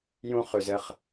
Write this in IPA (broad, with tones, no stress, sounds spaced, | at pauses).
j ũ˦ χ ʉ˨ z ɘ˦˨ χ